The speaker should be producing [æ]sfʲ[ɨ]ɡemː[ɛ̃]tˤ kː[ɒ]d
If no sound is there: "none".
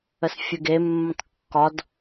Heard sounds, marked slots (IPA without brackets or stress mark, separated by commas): ə, ɨ, ə̃, ɒ